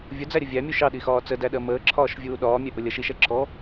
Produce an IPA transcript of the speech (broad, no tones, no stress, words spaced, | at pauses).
vʲʊd͡zæɾʲə vʲæmʲu ʃɑɗixɒː t͡sədæɗɜ məːǁʰɒːʃvʲuː ɗɒːmʲɛʔʊ lʲʌʃ iʃɛ ǁʰɔ